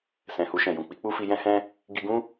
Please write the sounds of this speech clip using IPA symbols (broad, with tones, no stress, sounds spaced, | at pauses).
s ɛ̃˨ h u˧ ʃ ɛ̃˨ j ũ˨ k͡p i˨˦ k͡p u˦ f i˧ j ɛ̃˦ h ɛ̃˦ | ɡ i˧ ɡ ũ˦